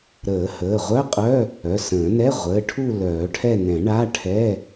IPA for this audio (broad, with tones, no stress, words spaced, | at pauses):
ɾəː˨˩˦həː˩˧˩ʁʷœ˧˥˧qʼœ˧˥˧ | œ˩˧˩sə̃ː˨˩˦ nɛ˧˥˧ ʁʷəː˩˧˩ʈʰu˦˨ lœː˨˩˦ʈʰɛ˦˨nɛ̃˨˩˦ ɳa˧˥˧ʈʰɛ˧˥˧